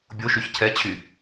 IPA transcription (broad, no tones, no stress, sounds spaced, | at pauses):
bʲ o ʃ y ç cʰ ɛ t͡ɕʰ y